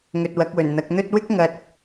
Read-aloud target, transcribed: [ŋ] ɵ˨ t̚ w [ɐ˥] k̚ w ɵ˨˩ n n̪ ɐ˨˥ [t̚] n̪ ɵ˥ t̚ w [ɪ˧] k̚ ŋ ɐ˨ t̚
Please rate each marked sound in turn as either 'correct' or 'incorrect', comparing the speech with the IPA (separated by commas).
correct, incorrect, incorrect, incorrect